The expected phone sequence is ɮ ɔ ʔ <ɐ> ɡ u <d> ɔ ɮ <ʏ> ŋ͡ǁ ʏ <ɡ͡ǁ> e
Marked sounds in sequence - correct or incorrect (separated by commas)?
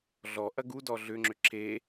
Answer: correct, correct, correct, incorrect